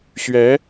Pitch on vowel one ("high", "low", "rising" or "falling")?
rising